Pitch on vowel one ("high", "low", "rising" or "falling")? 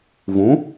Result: rising